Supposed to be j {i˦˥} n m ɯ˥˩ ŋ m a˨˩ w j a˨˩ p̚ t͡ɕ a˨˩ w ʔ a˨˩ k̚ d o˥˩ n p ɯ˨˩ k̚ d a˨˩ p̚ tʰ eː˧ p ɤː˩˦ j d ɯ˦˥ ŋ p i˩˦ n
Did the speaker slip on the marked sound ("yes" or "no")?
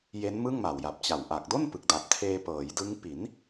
yes